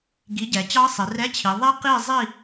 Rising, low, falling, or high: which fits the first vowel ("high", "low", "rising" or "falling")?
rising